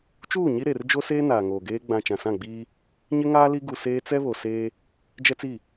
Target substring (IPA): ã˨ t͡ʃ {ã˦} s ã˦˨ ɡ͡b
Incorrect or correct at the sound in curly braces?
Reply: incorrect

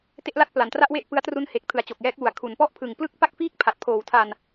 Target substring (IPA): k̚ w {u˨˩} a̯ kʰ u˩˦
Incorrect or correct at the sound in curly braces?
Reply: correct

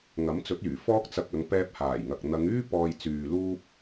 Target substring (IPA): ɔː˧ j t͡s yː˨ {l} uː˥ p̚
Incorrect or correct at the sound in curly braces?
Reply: correct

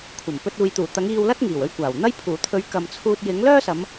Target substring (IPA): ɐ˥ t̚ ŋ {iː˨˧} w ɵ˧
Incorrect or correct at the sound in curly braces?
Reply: incorrect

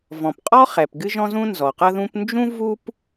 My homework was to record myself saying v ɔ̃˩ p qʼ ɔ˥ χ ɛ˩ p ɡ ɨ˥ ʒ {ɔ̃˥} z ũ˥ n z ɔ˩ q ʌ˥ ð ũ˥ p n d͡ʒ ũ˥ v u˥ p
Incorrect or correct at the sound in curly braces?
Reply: correct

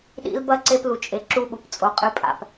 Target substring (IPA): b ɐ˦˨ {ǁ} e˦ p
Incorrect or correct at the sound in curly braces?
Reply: incorrect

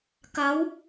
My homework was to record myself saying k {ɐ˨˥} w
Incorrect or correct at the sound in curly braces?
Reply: correct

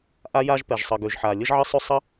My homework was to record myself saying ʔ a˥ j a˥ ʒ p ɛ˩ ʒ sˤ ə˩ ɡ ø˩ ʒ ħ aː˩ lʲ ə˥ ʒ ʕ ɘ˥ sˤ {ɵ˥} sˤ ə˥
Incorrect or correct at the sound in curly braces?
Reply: incorrect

